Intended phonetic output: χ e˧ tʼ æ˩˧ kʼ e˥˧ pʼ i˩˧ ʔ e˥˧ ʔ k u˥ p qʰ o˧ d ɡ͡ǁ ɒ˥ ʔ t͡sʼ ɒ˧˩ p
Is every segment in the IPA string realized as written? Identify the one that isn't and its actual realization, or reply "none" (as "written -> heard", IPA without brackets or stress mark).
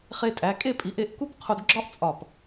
none